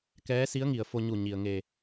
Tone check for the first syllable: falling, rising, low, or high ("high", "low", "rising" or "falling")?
rising